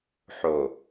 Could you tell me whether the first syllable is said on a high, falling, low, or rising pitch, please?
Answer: low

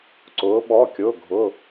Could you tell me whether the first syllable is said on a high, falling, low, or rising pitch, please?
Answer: rising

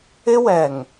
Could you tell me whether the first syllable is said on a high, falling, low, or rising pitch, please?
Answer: high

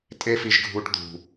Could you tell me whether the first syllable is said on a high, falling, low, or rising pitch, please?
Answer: high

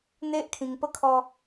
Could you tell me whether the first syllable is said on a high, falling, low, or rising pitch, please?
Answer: high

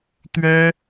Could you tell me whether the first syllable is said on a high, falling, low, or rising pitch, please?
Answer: high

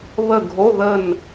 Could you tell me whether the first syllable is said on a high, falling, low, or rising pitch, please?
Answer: falling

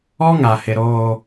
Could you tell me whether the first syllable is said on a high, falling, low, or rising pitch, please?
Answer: high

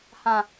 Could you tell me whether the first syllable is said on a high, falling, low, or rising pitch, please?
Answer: falling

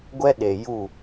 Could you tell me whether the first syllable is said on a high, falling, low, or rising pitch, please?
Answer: high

